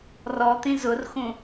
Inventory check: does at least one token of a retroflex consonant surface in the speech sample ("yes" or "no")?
no